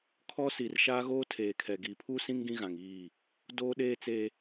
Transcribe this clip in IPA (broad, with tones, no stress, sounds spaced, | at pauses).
kʰ ɔ˦ s i˨ r ʃ a˦ ɣ oː˦ tʰ eː˨ kʰ ɛ˨ ɡ i˨ pʰ u˦ s ĩ˦ ŋ ɡ ĩ˦ ɣ ã˨ ŋ iː˦˨ | d oː˦ ɗ eː˦ t͡s e˦